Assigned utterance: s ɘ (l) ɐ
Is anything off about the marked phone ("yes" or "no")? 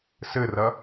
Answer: yes